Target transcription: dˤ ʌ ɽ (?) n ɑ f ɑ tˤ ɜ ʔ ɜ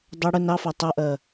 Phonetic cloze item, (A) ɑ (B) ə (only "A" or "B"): B